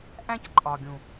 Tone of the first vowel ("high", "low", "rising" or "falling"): high